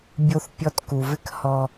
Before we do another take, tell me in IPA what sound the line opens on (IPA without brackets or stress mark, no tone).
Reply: bʲ